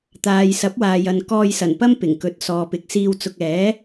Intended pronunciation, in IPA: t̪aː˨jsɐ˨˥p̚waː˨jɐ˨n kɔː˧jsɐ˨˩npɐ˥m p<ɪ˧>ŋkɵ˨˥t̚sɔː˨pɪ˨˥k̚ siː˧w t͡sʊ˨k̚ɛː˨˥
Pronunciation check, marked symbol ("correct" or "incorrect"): incorrect